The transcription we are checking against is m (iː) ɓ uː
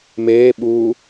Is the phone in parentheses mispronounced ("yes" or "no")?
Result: yes